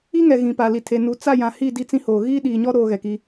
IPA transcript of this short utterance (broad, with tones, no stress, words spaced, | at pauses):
i˦ŋɛ˨ ɣĩ˨pa˨li˨ tʰe˨ nu˨t͡sa˦˨jã˨hi˦˨ di˦t͡sĩ˦hoː˨ ɣiː˦ɗiː˨ɲɔ˦ ɾoː˦ɣɛ˨ki˦